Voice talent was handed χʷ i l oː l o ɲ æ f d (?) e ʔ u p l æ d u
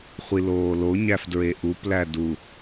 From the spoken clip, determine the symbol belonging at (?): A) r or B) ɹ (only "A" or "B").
B